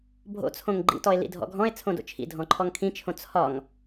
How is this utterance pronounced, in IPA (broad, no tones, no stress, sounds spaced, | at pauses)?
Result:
bʱ o̰ t͡sʰ õ ŋ ɡ͡ǃ ḭ t ɔ e̯ l ḭ dʱ ɔ̰ ɡʱ ɔ̃ e̯ t͡sʰ õ d o̰ t͡ʃʰ ḭ dʱ ɔ̃ ǃʰ ɔ ŋ kʰ ĩ t͡ʃʰ õ t͡sʰ ɒ ŋ